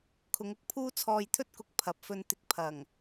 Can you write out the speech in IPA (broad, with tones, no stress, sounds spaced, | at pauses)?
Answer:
kʰ ʊ˨˧ ŋ ʊ˧ k̚ pʰ uː˥ t͡sʰ ɔː˧ j t̪ʰ ɵ˥ t̚ k ʊ˨˥ k̚ pʰ ɐ˨ p̚ f ɵ˧ n t̪ ɪ˧ k̚ pʰ ɐ˨˩ ŋ